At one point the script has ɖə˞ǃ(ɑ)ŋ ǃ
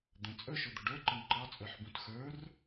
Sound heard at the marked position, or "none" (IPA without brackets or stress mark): ə